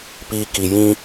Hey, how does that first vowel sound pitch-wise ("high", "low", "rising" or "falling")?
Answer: low